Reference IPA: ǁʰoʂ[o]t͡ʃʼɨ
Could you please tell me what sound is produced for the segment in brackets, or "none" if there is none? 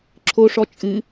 ɔ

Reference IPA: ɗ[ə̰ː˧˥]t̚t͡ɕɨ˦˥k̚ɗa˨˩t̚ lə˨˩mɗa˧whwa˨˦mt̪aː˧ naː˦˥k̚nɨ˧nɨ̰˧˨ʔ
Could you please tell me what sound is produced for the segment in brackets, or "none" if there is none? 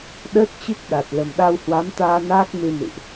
əː˦˥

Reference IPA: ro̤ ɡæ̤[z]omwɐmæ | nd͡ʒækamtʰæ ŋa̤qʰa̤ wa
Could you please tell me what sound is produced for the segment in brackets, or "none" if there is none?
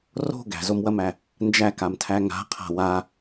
z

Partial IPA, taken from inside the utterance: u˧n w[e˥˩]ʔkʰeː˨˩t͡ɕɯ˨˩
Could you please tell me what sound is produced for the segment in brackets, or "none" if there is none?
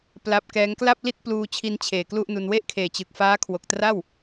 e˥˩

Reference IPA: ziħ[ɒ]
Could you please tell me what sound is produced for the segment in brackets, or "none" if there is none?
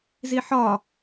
ɒ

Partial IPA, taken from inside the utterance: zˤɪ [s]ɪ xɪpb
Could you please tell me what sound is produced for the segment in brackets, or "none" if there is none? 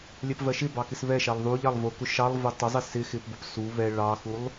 s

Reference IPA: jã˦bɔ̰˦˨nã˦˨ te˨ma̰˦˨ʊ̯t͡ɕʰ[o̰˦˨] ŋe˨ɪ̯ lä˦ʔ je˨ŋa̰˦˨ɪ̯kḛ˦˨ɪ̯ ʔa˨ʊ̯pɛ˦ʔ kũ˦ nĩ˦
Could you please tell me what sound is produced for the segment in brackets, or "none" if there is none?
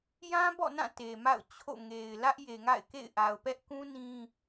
o̰˦˨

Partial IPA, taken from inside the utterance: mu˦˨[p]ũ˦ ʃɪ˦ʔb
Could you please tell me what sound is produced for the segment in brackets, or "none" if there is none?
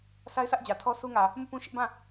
p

